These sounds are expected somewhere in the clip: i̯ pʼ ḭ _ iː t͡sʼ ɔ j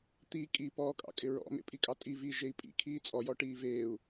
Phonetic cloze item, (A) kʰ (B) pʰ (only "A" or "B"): A